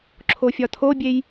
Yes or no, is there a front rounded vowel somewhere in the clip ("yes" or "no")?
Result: no